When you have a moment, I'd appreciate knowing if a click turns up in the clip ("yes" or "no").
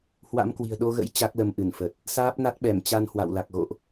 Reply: no